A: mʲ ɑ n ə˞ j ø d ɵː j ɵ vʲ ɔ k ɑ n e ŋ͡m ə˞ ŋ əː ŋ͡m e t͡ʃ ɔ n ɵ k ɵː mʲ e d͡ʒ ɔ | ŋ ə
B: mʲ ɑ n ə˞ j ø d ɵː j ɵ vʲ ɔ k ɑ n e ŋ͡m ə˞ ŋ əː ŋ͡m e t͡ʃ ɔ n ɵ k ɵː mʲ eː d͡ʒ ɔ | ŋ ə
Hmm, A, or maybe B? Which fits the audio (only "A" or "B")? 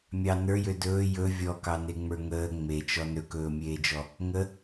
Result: B